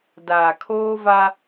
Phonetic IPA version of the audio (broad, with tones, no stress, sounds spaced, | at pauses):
d aː˨ kʰ oː˦ v a˦